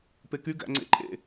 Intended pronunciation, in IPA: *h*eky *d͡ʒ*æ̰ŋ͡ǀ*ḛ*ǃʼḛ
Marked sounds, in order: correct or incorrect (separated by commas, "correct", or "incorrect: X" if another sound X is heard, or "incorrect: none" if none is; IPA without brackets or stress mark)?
incorrect: p, incorrect: ɡ, correct